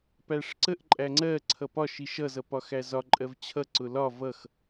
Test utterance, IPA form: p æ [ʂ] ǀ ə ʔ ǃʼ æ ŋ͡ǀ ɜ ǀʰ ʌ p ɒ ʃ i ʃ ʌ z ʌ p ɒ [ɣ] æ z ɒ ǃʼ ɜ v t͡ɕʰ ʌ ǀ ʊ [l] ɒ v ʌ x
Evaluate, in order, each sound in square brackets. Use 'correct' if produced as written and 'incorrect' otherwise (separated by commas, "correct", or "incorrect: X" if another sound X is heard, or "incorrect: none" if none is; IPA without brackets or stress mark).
correct, incorrect: x, correct